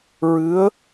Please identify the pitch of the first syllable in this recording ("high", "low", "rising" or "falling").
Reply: rising